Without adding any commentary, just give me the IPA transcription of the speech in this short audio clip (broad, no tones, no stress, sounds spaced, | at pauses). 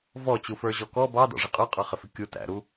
v ɔ t͡ɕ u f ə˞ ʑ ɔ k ɔ b ɑ d ɔ̰ ʐ ɪ qʼ ə˞ qʼ ɑ χ ɪ f ɪ kʲ u t æ̰ ɾ u